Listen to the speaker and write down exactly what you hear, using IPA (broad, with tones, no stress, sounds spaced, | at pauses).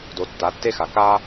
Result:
d o˨ tː a˨˦ tː e˦ x a˨ k a˦